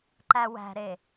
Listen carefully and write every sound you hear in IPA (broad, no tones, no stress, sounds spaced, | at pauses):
ǃ æ w æ̤ ɾ e